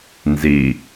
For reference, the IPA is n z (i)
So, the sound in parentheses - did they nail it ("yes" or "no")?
yes